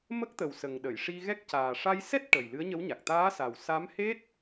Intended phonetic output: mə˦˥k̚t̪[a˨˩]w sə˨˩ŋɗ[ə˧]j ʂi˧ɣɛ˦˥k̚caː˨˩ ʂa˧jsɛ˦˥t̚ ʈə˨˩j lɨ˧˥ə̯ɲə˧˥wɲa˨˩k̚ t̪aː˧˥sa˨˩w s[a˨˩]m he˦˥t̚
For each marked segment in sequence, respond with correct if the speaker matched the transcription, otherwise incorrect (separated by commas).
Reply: incorrect, incorrect, incorrect